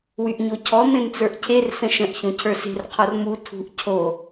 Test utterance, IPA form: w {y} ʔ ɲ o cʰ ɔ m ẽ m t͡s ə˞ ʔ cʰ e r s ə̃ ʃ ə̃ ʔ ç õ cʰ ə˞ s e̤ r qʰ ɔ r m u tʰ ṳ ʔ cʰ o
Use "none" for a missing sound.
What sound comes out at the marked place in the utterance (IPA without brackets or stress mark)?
y